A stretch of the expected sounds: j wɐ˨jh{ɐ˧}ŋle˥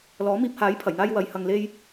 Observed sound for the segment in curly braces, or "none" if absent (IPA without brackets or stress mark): ɐ˧